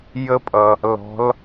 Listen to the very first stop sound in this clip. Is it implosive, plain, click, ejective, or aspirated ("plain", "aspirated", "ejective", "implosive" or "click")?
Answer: ejective